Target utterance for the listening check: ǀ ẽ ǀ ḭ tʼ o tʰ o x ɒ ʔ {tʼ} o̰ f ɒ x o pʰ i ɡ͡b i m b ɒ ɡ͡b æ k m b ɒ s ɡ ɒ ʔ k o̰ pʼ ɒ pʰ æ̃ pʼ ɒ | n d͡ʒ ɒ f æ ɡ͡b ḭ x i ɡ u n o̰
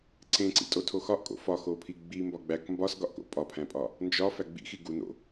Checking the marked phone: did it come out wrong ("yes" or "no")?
yes